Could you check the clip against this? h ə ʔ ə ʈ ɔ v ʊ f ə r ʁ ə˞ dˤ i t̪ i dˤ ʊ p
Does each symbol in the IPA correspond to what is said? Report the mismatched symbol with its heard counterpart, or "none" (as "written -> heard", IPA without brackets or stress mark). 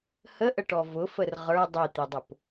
none